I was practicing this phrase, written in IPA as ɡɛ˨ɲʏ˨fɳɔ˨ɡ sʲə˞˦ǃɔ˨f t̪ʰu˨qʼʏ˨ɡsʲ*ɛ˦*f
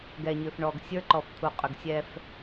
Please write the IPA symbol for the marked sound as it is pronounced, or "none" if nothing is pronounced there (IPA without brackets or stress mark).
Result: ɛ˦